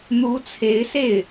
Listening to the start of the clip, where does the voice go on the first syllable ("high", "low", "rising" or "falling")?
rising